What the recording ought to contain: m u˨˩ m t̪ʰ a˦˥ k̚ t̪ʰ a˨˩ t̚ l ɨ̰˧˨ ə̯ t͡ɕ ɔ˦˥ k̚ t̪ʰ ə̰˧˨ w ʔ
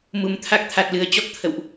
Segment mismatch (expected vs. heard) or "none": ɨ̰˧˨ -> ɨ˨˩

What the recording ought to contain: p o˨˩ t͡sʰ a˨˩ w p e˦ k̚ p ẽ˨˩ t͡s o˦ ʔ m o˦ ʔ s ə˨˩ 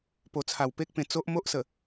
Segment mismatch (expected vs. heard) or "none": none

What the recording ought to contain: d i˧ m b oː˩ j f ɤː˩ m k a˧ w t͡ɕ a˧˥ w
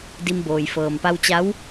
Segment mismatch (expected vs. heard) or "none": k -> p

